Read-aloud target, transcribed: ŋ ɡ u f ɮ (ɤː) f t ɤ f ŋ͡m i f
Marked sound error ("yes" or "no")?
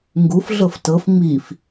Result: yes